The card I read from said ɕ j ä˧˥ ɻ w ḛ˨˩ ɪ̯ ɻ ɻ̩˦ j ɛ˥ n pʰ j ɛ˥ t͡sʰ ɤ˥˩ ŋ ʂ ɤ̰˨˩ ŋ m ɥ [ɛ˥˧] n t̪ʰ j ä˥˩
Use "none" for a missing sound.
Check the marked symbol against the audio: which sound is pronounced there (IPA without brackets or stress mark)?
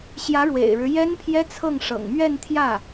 ɛ˥˧